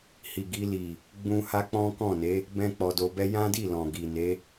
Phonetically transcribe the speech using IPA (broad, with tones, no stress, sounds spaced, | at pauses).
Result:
h i˨ ɡ i˧ l i˨ | ɡ͡b ũ˧ h a˦ k͡p ɔ̃˦ k ɔ̃˦˨ n e˨˦ | b ɛ̃˦ k͡p ɔ˧ d o˧ b ɛ˦ j ã˦ d i˦˨ l ɔ̃˨ ɡ i˨ n e˨˦